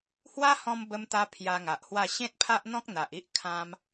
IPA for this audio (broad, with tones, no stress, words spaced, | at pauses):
hwa˦hɔ̃˧m bə˧mt̪a˧ pʰja˧ŋa˨ʔhwa˥˧ ɕẽ˦t̚pʰa˦ʔn̪ɔ̃˦k̚ n̪a˨ʔi˦ʔ kʰã˧m